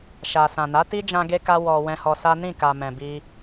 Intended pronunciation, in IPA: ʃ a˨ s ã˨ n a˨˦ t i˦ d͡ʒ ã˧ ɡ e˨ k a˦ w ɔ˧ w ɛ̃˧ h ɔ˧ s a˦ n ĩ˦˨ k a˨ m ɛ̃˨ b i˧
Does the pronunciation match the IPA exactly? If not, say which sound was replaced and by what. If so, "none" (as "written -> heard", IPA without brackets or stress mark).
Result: e˨ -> e˦